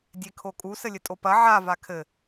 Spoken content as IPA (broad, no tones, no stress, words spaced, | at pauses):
dʲekʰokʼu sɘlʲɘtʼopɐ ʕa vakʰɘ